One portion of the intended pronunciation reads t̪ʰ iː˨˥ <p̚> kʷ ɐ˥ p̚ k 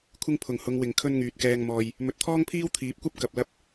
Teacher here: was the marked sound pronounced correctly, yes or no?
yes